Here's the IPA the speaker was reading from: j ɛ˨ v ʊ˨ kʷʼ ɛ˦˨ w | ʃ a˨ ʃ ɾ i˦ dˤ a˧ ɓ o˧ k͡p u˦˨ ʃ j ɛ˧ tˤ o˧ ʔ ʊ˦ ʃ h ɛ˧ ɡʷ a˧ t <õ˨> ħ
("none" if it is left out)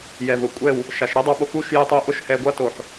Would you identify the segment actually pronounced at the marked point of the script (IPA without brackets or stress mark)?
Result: o˨